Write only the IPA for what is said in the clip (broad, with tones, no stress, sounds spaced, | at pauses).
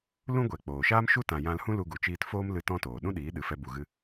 l ũ˦ ɡʷ ɛ˨ k͡p oː˨ ʃ aː˦ m ʃ u˦ t ã˨ j ã˧ l h ũ˦ l u˧ ɡ u˨ t͡ʃ iː˧ t f oː˦ m l ɨ˧ t ɔ̃˦ t oː˨ ɗ ũ˦ ɗ iː˨˦ ɗ ɨ˨ f ɛ˧ b u˨ ɣ ɨ˧